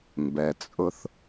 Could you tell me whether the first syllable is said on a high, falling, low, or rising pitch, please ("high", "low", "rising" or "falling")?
low